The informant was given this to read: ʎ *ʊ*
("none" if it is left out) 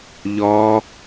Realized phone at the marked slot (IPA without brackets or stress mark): ɔ